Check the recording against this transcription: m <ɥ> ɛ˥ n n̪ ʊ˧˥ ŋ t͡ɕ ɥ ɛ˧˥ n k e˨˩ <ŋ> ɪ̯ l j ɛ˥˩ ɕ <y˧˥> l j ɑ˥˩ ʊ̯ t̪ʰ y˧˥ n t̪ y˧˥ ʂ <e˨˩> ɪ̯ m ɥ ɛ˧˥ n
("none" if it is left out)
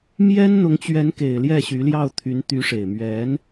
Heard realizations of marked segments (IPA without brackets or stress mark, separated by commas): j, none, y˧˥, e˨˩